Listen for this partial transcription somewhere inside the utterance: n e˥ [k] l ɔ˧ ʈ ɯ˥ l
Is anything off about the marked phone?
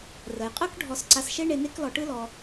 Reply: no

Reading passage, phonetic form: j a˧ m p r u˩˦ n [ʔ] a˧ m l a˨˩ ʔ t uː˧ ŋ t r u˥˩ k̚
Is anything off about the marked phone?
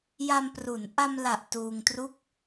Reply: no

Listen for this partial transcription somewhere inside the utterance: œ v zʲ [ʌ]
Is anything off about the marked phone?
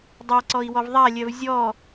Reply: yes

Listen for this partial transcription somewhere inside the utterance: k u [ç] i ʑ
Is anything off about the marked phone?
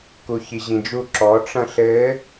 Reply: no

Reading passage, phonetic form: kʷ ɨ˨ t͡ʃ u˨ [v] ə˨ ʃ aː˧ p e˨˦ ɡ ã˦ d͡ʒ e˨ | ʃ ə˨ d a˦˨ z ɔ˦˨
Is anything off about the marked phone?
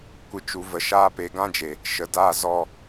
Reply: no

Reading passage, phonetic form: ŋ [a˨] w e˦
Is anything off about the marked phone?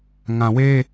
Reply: yes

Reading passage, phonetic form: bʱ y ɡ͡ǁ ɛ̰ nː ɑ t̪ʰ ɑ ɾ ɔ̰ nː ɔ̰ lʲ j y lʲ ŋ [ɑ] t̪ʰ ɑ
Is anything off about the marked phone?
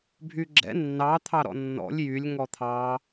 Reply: yes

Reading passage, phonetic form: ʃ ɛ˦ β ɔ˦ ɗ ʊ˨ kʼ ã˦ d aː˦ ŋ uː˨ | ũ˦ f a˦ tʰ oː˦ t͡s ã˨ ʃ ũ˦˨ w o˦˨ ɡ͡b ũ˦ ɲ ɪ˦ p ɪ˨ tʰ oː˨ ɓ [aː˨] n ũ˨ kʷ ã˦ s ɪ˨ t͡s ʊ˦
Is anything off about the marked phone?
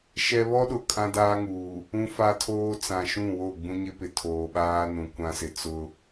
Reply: yes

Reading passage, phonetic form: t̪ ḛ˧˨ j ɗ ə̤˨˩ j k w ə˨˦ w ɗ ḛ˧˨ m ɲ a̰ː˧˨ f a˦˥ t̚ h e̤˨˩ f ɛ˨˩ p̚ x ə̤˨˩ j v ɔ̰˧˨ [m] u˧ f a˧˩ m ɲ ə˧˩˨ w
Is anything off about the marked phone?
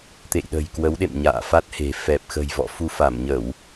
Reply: yes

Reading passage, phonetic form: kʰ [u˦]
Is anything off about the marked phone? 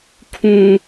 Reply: yes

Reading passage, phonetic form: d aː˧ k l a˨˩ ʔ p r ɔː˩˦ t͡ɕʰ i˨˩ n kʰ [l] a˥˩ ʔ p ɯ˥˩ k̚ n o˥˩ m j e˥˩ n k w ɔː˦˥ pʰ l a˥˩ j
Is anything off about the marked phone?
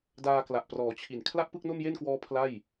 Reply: no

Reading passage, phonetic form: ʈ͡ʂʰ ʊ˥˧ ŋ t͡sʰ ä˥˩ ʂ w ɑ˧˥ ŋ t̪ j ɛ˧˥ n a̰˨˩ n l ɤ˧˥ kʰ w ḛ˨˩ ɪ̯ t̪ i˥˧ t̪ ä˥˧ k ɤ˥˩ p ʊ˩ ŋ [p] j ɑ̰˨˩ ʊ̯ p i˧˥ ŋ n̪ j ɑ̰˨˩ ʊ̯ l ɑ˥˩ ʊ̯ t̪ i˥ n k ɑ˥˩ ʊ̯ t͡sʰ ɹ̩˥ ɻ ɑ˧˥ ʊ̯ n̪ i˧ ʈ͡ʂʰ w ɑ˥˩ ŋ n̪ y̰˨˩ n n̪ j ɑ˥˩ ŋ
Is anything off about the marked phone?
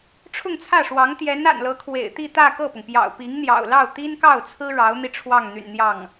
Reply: no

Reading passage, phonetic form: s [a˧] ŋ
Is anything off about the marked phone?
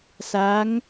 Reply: yes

